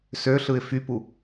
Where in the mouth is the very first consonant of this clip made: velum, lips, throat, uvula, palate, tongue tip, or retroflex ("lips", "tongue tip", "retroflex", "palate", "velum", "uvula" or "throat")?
tongue tip